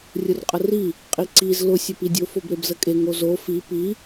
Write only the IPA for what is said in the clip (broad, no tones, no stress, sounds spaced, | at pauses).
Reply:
rʲ ʊ r qʼ ə r i | qʼ i ǀ i z l ʊ sʲ ə p i dʲ ʊ f o b ɾ e b z ə kʼ e ŋ o z o f i p i